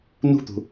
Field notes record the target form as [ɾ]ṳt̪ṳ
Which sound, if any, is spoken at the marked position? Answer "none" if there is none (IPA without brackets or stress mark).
n